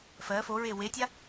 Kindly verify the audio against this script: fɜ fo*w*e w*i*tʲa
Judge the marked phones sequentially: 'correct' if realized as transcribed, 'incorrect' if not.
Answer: incorrect, incorrect

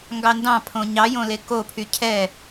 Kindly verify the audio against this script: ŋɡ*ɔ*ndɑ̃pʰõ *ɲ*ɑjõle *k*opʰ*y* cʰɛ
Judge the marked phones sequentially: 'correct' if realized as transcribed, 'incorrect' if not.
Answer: incorrect, correct, correct, correct

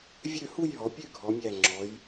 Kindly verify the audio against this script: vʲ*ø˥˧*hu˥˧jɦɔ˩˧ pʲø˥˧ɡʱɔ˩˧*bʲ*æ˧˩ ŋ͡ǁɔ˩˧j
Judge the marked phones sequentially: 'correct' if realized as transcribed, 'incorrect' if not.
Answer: correct, incorrect

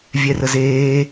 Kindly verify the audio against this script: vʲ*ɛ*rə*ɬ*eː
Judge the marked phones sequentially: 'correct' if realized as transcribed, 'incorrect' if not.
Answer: correct, incorrect

